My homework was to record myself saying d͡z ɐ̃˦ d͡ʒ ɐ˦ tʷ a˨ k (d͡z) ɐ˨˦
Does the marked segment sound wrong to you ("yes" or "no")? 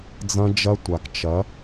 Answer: yes